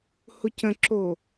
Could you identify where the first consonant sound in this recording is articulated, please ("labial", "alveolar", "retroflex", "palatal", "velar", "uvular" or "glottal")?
glottal